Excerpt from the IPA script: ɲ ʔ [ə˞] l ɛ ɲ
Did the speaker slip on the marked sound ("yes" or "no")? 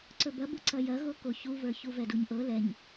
yes